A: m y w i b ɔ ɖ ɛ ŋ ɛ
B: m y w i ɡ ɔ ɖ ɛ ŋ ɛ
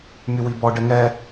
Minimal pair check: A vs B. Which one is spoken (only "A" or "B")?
A